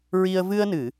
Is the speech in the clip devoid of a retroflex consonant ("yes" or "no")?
yes